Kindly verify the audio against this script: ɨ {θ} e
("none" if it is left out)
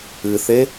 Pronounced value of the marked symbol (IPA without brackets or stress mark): θ